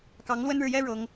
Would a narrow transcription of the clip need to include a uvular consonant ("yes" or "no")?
no